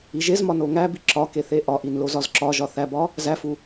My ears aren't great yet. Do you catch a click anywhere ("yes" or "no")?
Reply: yes